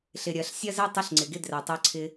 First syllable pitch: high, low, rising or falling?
low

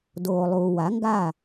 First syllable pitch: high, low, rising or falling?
low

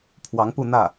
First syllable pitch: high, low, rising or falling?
rising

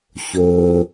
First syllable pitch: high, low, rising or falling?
low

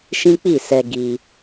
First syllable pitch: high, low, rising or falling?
high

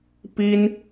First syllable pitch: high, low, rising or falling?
high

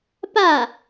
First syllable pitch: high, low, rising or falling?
falling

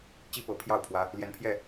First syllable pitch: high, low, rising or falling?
high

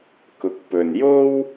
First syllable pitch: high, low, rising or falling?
rising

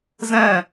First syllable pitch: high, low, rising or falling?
falling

